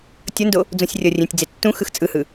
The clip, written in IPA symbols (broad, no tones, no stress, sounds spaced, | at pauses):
tʲ ʌ n d o | d͡z õ sʲ rʲ ʌ rʲ ẽ tʲ d͡z e tː ũ x ɯ x t͡sʼ ɯ h ɯ